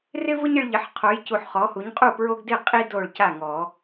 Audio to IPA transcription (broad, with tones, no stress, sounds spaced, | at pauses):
r ɪ˦ v ʊ˦ ɲ ɪ˦ ɭ ʎ ɪ˨˦ ħ qʰ o˨˦ j c u˨ ħ χ ɔ˨˦ h u˨˦ ɲ qʼ u˥˩ p ɹ o˦ ɡ d ɪ˥˩ qʼ i˦ d o˥˩ ɭ c a˥˩ ŋ ɔ˨˩˦